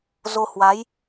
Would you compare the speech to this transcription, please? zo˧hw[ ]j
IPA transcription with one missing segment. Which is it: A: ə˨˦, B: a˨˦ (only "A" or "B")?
B